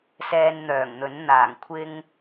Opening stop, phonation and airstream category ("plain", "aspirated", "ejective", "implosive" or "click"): aspirated